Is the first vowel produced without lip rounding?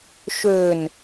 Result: no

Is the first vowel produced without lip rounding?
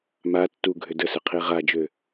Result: yes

